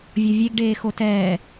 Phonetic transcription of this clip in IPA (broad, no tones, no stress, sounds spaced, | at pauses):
vʲ ɔ vʲ e ɡ ɖ eː x o t ɛː